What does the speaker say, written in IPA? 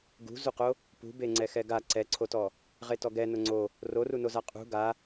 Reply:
ɡ ṳ z u q o | p ṳ b e ŋ͡ǀ ɛ x ɛ ɡ a ǀ ɛ ǀʰ o t ɔ | ʁ e t ɔ ɡ ɛ n ʊ ŋ͡ǀ o | r o r u n o z a qʼ ṳ ɡ a

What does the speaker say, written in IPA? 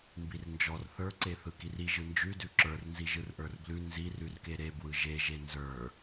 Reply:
m b i r n d͡ʒ ɔ r θ ə˞ ǀ e θ ɯ k i r i ʒ ɯ n d͡ʒ ʉ d ʉ ǁ ə˞ r n z i ʒ ɯ r ʔ ə˞ r b l ʉ n z i r ʉ r k e ɾ e b w ɯ ʒ e ʒ e n z ə˞

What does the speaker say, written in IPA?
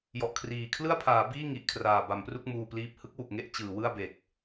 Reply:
j ɔ˨˩ ʔ kʰ r iː˨˩ kʰ l ɯ˥˩ a̯ pʰ aː˩˦ b iː˥˩ ŋ i˨˩ ʔ kʰ r aː˨˩ b a˩˦ m p r u˥˩ k̚ m uː˧ p l iː˦˥ p̚ h ɯ˦˥ k̚ w u˨˩ k̚ ŋ e˦˥ ʔ t͡ɕ ɯː˩˦ w ɯ˥˩ a̯ b e˨˩ k̚

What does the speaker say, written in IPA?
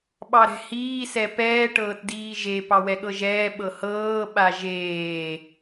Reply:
ɓ ɑ ɾ ɛ̤ h iː s ɛ p ɛː ʈ ɤː t d iː ʒ e p ɑ w ɛ ɠ ɤ ʒ ɛː ɓ ɤ h ɤː ɓ a ʒ eː

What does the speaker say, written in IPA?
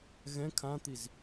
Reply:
ɣ ɛ̃ kʰ ã t̪ i z

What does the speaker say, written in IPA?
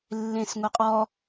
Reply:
lː ẽ s ŋʷ e qʼ ɔ

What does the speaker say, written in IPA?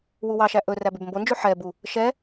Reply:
w u w ɑ ʃ æ ʔ ɵ r æ b ʉ b m b o n d͡ʒ ʉ ħ ɛ b u | ʃ ɛ

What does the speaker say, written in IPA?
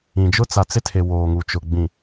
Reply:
ĩ˨ d͡ʒ ʊ˦ t͡s a˨ t͡s ɪ˦ tʰ e˨ w oː˨ ŋ u˨ t͡ʃ ʊ˨ ɡ͡b ĩ˨

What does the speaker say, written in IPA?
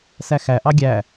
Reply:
s æ x æ ʔ ɑ ɡʲ æ

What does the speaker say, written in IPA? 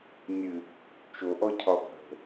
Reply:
nʲ ɨ | t͡ʃ o ʔ ɔ cʰ ɒ bʱ ə̤

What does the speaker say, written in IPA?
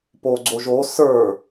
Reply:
p o ɡ͡ǀ o ʒ o s ə˞

